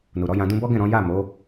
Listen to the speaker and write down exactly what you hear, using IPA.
n u˨ ɾ ɔ˨˦ j ã˧ d ũ˧ b ɔ˦ ɡ ɛ̃˦˨ ɾ ɔ̃˨˦ j a˦˨ m o˨˦

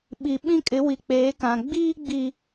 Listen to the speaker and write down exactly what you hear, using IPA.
ɓ i˨ ɓ ĩ˦ kʼ ɪ˨˦ w i˨ k͡p eː˨˦ k ã˨ ɡ͡b iː˦ ɡ͡b i˨

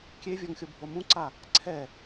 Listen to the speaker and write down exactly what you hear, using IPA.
kʲ e vʲ ɔ ŋ xʲ o bʱ o m ũ ǀ a | ǀʰ ɛ

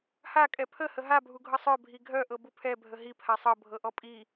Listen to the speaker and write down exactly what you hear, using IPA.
h a kʼ ɛ pʰ ə h ə ɦ a bʱ u ɡʱ ɤ sˤ œ bʱ i ɡʱ œ ʔ ɤ b u pʰ ɛ bʱ ə ɦ i pʰ a sˤ ɤ bʱ ɤ ʔ ɔ pʼ i

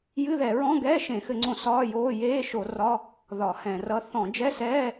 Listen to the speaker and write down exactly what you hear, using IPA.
j ɨ˧˥˧ ð ɛ˧˩˧ ɹ ɔ̃˧˥˧ ɡ ɛː˧˥˧ ʃ ẽ˧˩˧ x ɘ˧˩˧ ŋ͡ǀ õ˧˩˧ s ɒː˧˥˧ j oː˧˥˧ j eː˧˥˧ ʃ o˧˩˧ r ɒ˧˥˧ | ð ɒ˧˩˧ h ɛ̃˧˩˧ r ʌ˧˥˧ θ ɔ̃˧˩˧ d͡ʒ ɛ˧˥˧ s ɛː˧˥˧

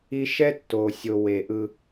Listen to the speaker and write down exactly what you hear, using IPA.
i˦ ʃ ɛ˦ tː o˨ sʲ o˨ w e˨ ʔ ɯ˦

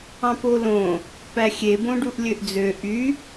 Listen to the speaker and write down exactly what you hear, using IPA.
ɑ̃ p o l õ | p æ xʲ e b õ ɖ u ʔ lʲ ø ʔ d͡z ø ʔ y

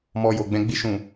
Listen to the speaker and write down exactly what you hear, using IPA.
m ɔ˧ j o˨ ɡ͡b ɛ̃˧ ɡ͡b i˧ ʃ ũ˨

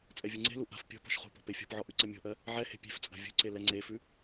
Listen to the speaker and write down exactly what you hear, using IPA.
t͡sʼ ɛ vʲ u ŋ͡ǀ e̤ l u ʔ a̤ f pʲ ɔ̤ p ɔ̤ ʃ χ ṳ p ɔ̤ p e fʲ ɔ̤ p ʕ ɔ ʔ ʉ ǀ ɐ mʲ ɔ̤ ʔ ɜ | ʕ ɛ h e̤ pʲ e̤ f t͡sʼ a̤ vʲ ṳ ǀ e l ɛ ŋ͡ǀ e f ʉ

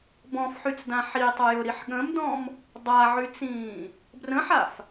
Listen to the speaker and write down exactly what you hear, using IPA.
b ɔ̃ f ħ y t͡s d ã ħ i tˤ ʊ j ʊ ɾ i ħ ɠ ə̃ m d ɔ̃ m | dˤ a ʕ y t͡s ĩː | b r ə̃ ħ a f

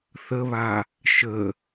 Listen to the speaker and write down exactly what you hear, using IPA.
θ ə β a | ʃ ə

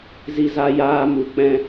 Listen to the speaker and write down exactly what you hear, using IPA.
z i˧ z a˧ j aː˧ m u˨ k͡p ɛ̃˧

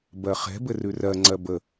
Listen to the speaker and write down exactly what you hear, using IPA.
b ɜ χ ɛ̤ b ɘ r ʉ r ɜ ŋ͡ǀ ɜ b ə

